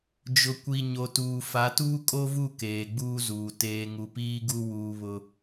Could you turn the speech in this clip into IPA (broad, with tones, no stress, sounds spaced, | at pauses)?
d͡ʒ ʊ˨ kʷ i˨ ɲ o˨ t uː˨ f a˨˦ t uː˦ kʼ o˦ v u˦˨ k eː˨ ɡ͡b uː˦ z uː˨ t eː˨ ŋ u˨ p iː˦ ɡ u˦ w uː˦ β ʊ˦